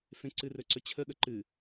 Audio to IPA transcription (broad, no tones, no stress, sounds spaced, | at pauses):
f ẽ ǀ ɨ r ɵ ǀ ɵ t͡ɕʰ ə ɠ ə ǃ ɨ